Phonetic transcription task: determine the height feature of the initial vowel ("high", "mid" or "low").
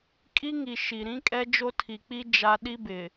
high